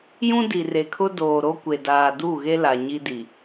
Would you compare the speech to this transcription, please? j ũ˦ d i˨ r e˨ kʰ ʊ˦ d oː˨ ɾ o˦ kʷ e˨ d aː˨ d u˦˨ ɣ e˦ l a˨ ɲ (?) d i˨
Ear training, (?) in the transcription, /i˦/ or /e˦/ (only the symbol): i˦